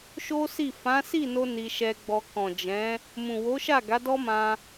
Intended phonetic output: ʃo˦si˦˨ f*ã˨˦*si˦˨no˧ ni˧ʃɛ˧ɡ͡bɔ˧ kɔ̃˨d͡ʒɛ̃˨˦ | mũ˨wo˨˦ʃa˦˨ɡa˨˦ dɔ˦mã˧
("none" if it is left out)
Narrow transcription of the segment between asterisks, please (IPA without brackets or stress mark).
ã˨˦